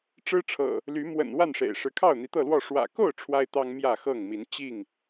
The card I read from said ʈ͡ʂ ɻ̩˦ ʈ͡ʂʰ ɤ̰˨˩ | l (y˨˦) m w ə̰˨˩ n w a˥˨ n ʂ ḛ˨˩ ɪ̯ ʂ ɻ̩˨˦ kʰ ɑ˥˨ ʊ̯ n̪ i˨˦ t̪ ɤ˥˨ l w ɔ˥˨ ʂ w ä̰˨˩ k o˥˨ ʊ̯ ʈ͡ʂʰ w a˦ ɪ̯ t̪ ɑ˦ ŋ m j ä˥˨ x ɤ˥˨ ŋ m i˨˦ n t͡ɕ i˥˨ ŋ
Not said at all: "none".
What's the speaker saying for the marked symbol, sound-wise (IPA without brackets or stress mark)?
y˨˦